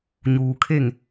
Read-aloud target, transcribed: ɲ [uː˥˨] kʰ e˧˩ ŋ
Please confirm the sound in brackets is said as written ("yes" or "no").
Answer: no